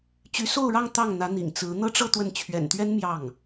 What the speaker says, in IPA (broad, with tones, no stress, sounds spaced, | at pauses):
t͡ɕ y˧˥ s o˥˧ ʊ̯ ɻ ɑ˥˧ ŋ t̪ ɑ˥˩ ŋ n̪ ä˧˥ n̪ ḭ˨˩ ŋ t͡s ɹ̩˧˥ n̪ ɤ˥ ʈ͡ʂ ɤ˥˧ t̪ w ə˥˩ n t͡ɕʰ ɥ ɛ̰˨˩ n t̪ ɥ ɛ˥ n m j ɑ˥˩ ŋ